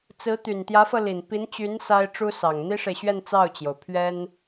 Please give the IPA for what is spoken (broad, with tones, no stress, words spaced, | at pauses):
t͡sɹ̩˧˥ t̪y˨˩nt̪jä˧˥fɤ˧ li˨˩npi˧˥nt͡ɕy˧˥n sa˥ɪ̯ʈ͡ʂu˥ sɑ˨˩ŋ n̪i˥ʂe˨ɪ̯ɕɥɛ˥˧n t͡sɑ˥˩ʊ̯t͡ɕjo˩ʊ̯pʰɥɛ˥n